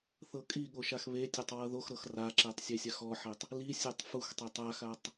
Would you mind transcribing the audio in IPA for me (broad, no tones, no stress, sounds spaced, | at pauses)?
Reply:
θ ɤ kʼ i ɠ o ʃ a x β e tʲ o tˤ w ɤ ð o x ɾ ɤ x r a ǁ e tˤ sʲ e sʲ a x ɔ ħ e tˤ | l i sʲ e tˤ f u x tˤ e tˤ a x a tˤ